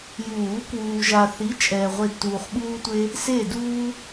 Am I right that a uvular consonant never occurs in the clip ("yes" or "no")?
no